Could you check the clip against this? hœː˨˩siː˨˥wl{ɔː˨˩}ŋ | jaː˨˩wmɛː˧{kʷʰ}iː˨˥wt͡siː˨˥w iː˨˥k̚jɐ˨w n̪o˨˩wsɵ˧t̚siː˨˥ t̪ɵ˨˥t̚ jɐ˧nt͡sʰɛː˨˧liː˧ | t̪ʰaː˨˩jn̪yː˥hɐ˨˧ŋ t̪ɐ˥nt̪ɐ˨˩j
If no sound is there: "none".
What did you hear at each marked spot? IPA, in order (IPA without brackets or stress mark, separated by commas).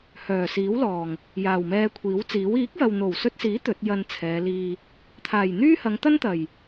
ɔː˨˩, kʷʰ